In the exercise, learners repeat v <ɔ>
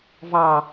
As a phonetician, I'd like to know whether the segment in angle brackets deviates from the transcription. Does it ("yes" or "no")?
yes